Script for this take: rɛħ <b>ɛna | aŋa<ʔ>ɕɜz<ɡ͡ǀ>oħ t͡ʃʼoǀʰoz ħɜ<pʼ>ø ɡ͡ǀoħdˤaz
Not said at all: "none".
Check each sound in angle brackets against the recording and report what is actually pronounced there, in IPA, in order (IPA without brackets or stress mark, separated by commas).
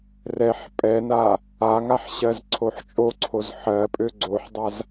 pʼ, ħ, ǀʰ, pʼ